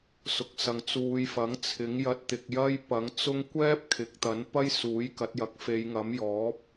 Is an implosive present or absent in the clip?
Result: absent